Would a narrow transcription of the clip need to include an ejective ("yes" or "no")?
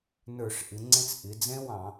no